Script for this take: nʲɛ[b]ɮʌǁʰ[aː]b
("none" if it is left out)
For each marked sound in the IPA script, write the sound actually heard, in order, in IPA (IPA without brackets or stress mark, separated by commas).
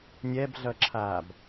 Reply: b, aː